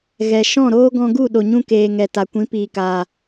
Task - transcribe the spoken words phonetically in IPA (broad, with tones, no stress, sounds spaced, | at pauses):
ɣ ɛ˨ ʃ ɔ̃˦˨ ɾ oː˦ ɡ ɔ̃˧ ɡ u˦˨ ɗ o˨ ɲ ũ˧ k eː˨ ŋ ɛ˨ t a˨ kʷ ĩ˨˦ p iː˨ k aː˨